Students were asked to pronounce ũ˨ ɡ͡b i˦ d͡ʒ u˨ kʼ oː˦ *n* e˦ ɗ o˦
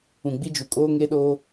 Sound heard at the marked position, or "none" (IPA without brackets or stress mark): ŋ